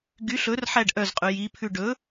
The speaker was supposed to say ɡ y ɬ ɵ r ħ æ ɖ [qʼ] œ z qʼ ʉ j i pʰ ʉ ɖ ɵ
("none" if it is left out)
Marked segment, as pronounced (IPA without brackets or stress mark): ʔ